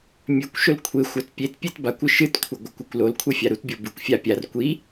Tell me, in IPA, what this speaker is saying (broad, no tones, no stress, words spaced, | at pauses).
mʲʉkʷʃɵl kʷʰexʷat pʲetpʲet bakʷɨ ʃɨtkʷʰɨɡʷakʷakʷ lolkʷʰefʲa ɾutbʲo bɨkʷfʲa pʲar kʷi